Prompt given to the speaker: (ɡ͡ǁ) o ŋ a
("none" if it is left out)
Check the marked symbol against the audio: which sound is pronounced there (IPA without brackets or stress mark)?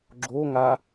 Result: ɡ͡ǁ